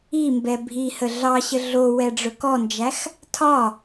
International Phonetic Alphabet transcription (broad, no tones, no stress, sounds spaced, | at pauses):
i m b ɛ bʱ i h ə ɮ ɑ ɕ ə ɮ o w ɛ ɖ͡ʐ ɵ k ɔ n d͡ʒ æ x | tʰ ɒ